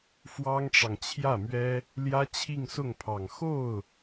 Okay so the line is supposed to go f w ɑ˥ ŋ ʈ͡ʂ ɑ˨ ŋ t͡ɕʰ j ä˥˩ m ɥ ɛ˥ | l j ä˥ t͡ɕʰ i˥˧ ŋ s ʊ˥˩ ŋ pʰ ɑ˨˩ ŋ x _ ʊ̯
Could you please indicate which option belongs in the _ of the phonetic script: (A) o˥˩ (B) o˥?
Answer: A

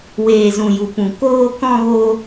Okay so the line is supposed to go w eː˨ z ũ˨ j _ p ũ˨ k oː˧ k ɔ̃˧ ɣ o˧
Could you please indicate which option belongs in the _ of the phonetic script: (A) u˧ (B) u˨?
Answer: B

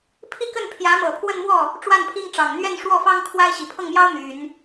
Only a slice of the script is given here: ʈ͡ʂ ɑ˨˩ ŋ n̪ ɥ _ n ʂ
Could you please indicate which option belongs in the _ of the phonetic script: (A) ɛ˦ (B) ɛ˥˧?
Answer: B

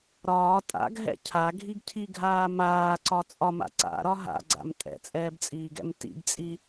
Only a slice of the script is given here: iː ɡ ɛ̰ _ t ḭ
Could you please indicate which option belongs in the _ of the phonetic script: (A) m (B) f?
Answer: A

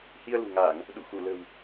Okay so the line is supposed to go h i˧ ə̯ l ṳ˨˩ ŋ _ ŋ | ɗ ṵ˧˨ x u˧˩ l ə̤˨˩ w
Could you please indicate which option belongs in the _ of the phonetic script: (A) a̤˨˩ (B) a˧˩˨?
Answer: B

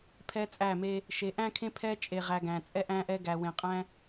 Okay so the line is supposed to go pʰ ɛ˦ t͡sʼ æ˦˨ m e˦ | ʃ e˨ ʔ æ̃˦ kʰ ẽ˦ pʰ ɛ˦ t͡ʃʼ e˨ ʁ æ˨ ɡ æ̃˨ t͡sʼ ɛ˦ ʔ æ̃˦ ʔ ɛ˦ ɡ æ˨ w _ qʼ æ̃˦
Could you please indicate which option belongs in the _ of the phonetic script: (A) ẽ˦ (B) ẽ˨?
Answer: B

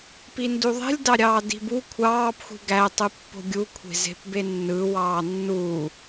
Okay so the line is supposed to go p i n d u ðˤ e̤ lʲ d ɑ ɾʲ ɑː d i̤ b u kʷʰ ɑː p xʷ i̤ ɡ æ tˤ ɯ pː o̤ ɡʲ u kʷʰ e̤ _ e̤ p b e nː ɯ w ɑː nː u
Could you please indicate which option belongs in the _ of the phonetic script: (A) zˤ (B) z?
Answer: B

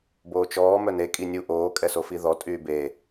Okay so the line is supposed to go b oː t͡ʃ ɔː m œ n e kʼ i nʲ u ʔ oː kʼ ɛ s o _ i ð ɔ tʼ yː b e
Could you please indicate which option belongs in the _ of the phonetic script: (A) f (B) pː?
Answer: A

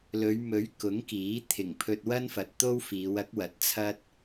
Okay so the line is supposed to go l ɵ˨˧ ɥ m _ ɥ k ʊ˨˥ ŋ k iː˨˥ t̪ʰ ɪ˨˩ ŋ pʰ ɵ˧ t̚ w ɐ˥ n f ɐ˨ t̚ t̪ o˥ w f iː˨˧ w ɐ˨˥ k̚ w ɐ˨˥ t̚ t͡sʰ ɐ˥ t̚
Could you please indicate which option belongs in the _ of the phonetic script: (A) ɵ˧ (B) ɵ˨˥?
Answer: B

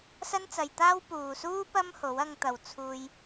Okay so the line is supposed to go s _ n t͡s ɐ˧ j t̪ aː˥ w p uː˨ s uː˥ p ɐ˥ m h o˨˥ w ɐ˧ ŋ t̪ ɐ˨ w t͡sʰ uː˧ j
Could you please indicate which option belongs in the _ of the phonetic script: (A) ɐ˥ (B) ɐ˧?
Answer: A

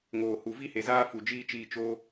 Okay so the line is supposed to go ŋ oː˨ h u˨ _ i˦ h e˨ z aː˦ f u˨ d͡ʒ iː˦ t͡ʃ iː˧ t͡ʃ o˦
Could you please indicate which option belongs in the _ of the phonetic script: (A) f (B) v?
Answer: B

